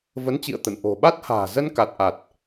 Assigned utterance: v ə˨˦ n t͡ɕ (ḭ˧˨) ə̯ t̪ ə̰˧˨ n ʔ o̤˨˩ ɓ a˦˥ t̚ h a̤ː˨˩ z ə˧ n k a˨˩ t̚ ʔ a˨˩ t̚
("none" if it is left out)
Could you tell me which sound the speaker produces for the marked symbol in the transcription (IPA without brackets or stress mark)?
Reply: ḭ˧˨